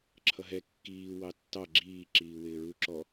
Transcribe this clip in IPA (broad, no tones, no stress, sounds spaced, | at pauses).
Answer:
ǁʰ ʌ ɦ ɛ kː iː w ɑ tː ɑ ɡ͡ǁ iː ǁ iː w ɪː ɹ u ǁ ɔ